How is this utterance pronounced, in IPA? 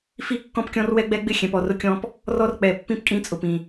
f i˦ kː ɔ̃˦ p kʲ ɔ̃˦ r w ɛ˦ ɡ͡b ɛ˦ ɡ͡b ɪ˦ xʲ ɛ̃˨ p ɔ˨ r ʊ˦ kʲ ɔ̃˦ p | r ɔ˦ r k͡p ɛ˨ pː ĩ˦ p kʼ ĩ˦ t͡sʼ ʊ˨ p ĩ˨

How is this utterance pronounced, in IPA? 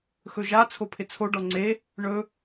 x ɵ ʒ a t͡sʰ o pʰ ɪ t͡sʰ o ɖ ɔ ŋ͡ǀ e | ɳ ɵ

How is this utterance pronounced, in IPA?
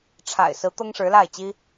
ʈ͡ʂʰ a̰˨˩ ɪ̯ s ɹ̩˧˥ t̪ ɤ˥ ŋ ʂ ɻ̩˧˥ l a˥˩ ɪ̯ t͡ɕ i˥

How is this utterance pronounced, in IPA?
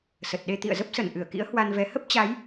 s ə˨˩ t̚ ɗ e˧ t̪ ḭ˧˨ ə̯ z ə˦˥ p̚ s ə˧˩ n ʔ ɨ˧˩ ə̯ k ḭ˧˥ ə̯ h w a˧ n v ɛ˨˦ h ə˦˥ p̚ t͡ɕ a˨˦ j

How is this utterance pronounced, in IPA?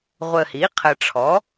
ʁʷ ə˨ h i˩˥ qʰ ə˨ ʈ͡ʂʰ ɔ˩˥

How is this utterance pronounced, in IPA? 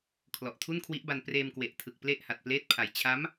kʰ l ɔ˨˩ ʔ tʰ u˥˩ n kʰ w i˦˥ ʔ b a˧ n p r eː˧ m k w e˨˩ ʔ tʰ ɯ˨˩ k̚ p l e˥˩ ʔ h a˨˩ t̚ p l eː˥˩ t̚ pʰ a˨˩ j t͡ɕʰ a˦˥ m

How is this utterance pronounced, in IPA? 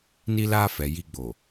n i˦ l aː˦ f ɛ˨ j i˦ ɡ͡b o˨

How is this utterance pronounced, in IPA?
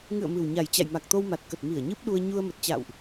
ŋ ɨ̰˧˨ ə̯ m ɨ˨˩ w ɲ a˨˩ j t͡ɕ a̰˧˨ j m a˨˩ k̚ t̪ o˧ w m a˨˩ t̚ k ə˨˩ t̚ m i˧˩ ə̯ ɲ ɨ˦˥ p̚ ɗ u˧ ə̯ ɲ u˧ ə̯ m ə˨˩ t̚ t͡ɕ a̰ː˧˨ w ʔ

